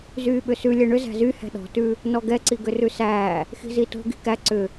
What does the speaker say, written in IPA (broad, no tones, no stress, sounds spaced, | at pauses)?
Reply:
z yː ɓ ʏ s ʉ lʲ ɛ ɳ ʏ z æ̤ z y h ɛ̤ ɗ ɔ̤ t ʉ | n ɔ ɡ ɛ ǀ i ɡ ʏ r ʉ s æː | x i̤ z i t o̤ ɡ i̤ k æ ǀ ʏ